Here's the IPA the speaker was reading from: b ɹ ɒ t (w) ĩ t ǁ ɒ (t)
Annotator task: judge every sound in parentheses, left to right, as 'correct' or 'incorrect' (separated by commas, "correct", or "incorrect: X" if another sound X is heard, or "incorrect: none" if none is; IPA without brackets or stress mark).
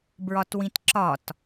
correct, correct